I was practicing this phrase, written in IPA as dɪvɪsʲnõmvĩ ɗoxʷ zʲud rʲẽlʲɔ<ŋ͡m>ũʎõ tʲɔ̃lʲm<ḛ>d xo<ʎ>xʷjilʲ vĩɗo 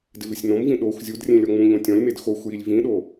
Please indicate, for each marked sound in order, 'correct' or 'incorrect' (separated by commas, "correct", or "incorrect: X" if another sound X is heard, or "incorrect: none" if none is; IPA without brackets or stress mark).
correct, incorrect: e, incorrect: none